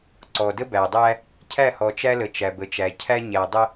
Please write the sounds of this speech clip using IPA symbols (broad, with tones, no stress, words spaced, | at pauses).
ǀɔ˨də˦bæ˨dˤæ˦ | cʰæ˦˨hɔ˨t͡ʃæ˦lə˨ t͡ʃæ˨bə˨t͡ʃæ˨ cʰæ˦ɲæ˨dˤə˦